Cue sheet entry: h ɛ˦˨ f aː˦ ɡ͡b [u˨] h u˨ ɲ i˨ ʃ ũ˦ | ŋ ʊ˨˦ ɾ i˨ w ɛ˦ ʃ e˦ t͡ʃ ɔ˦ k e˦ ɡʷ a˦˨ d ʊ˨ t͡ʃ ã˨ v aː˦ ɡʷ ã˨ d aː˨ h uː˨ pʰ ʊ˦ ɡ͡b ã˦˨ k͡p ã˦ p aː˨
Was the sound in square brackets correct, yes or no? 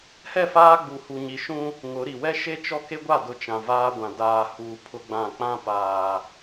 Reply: yes